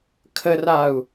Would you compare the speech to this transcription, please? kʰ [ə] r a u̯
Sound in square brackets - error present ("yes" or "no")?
no